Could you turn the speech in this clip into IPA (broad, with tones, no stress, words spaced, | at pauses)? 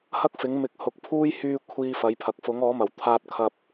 hɐ˥k̚fɪ˨˥ŋmɪ˨˥k̚ hʊ˨˥k̚pʰuː˥j hyː˧ kʷʰiː˧fɐ˨˥jpʰɐ˨k̚ fʊ˨˥ŋɔː˨˥mɐ˨˩w t̪ʰaː˧t̚kʰɐ˧p̚